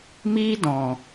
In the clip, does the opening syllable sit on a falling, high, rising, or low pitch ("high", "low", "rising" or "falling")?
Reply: high